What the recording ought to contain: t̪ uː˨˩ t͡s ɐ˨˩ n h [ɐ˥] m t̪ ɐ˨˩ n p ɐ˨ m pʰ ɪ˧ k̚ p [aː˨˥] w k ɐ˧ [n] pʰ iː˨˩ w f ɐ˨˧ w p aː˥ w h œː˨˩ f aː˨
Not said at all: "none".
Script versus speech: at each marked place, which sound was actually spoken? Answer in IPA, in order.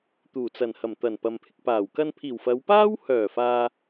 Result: ɐ˨˩, aː˨˩, n

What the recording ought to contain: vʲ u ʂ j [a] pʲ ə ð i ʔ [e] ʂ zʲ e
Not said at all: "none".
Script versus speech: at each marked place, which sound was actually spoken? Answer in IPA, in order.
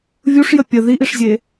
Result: ə, i

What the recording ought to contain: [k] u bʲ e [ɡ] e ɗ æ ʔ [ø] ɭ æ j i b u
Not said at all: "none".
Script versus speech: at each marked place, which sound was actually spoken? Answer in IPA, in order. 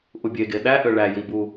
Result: ʔ, ɡ, ø

